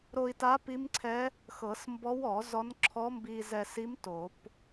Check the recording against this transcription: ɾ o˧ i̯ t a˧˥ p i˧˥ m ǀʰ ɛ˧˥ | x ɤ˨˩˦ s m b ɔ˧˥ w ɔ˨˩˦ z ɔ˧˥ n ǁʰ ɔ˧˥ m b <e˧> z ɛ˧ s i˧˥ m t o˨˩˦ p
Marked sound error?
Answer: yes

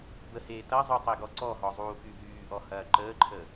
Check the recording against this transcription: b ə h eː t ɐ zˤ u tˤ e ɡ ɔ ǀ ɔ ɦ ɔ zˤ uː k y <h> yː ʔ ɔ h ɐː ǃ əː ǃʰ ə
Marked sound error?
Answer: yes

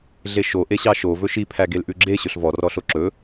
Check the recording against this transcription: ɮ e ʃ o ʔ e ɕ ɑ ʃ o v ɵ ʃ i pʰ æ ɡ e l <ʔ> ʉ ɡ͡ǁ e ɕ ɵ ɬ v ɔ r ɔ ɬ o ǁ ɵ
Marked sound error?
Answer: no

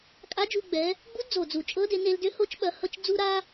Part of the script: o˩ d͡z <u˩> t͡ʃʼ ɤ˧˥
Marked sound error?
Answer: no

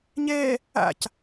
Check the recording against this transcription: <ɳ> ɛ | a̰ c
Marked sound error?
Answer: yes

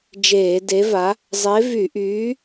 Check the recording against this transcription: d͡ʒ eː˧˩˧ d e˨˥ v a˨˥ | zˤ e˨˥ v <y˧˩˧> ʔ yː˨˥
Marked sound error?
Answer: no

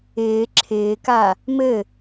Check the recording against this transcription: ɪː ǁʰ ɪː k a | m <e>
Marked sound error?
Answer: yes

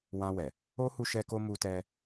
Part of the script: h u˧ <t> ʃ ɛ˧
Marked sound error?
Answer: yes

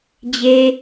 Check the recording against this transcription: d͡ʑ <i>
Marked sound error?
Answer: yes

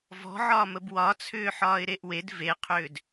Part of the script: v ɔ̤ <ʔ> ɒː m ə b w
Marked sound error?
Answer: yes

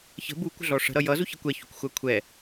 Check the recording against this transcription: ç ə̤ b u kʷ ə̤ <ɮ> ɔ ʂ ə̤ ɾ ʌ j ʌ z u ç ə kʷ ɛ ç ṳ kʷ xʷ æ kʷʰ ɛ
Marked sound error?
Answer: no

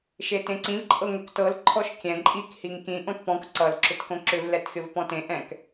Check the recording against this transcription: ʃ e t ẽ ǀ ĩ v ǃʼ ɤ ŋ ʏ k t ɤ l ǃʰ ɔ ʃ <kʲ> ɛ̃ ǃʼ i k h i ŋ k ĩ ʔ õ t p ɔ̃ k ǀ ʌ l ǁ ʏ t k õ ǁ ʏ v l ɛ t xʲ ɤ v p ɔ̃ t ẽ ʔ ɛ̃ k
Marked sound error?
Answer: no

